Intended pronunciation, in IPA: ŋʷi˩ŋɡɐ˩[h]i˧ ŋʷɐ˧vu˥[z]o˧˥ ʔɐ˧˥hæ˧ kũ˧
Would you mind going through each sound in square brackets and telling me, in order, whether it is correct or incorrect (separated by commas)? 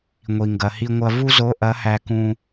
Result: correct, correct